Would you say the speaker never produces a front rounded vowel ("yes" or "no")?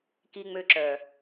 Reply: no